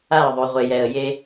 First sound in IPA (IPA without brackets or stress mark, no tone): a